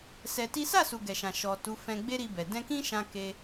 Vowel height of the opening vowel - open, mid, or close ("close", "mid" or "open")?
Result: mid